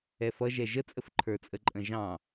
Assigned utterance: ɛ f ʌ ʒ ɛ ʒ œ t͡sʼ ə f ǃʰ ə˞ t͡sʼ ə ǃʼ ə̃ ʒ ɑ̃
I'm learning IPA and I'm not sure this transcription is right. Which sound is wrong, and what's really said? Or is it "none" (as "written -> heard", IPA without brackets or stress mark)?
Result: œ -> ə